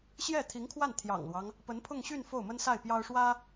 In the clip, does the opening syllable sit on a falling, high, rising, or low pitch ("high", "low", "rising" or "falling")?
falling